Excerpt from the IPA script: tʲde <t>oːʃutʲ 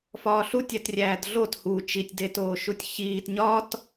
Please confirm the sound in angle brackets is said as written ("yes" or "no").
yes